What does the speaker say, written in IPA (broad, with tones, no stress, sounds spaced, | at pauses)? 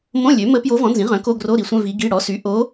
m õ˧˥˧ lʲ ø˩˥ m ə˧˥ p j o˧˥ v ɔ̃˩˥ n z ĩ˩˥ ʁ œ̃˩˥ k o˧˥˧ ɡ r o˧˥˧ ɾ i˩˥ sʷ œ̃˧˥˧ v i˧˥ ɡ i˧˥˧ ɽ ɔ˩˥ s y˩˥ ʔ o˧˥